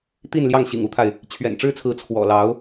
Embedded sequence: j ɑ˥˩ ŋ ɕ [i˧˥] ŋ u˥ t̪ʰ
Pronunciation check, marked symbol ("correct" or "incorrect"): incorrect